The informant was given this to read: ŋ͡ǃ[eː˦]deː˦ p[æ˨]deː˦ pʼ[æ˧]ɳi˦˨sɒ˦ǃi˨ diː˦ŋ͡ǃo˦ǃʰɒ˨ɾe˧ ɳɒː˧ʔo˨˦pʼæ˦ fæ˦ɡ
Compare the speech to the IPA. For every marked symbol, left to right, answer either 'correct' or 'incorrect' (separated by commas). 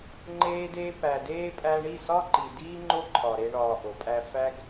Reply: correct, correct, correct